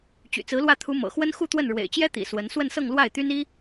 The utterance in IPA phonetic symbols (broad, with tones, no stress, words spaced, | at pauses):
t͡ɕy̰˨˩t͡sɹ̩˧˥lwä˥˩ t̪ʰu˧˥mɤ̰˨˩xwə˥n xu˥˧t̪wə˥˩n ɻwḛ˨˩ɪ̯t͡ɕjɛ˥t̪ḭ˨˩ swə˧˥n swə˥˧nsɤ˥˧ŋlwa˥˩ɪ̯t̪y˥n i˥